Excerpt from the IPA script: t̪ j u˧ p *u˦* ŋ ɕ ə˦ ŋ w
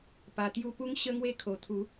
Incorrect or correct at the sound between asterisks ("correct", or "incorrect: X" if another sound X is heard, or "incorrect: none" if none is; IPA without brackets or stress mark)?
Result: correct